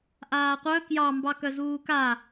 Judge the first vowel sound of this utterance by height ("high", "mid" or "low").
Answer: low